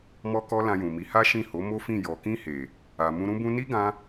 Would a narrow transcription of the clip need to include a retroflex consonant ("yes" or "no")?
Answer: no